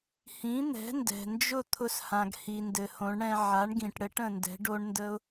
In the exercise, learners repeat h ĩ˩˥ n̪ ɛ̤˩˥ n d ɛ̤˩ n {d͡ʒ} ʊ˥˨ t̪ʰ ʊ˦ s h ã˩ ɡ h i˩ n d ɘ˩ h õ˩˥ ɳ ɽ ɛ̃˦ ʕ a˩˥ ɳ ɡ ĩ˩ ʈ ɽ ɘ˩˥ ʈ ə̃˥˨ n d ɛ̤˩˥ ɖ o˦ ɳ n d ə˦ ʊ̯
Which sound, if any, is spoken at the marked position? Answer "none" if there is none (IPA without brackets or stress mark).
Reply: d͡ʒ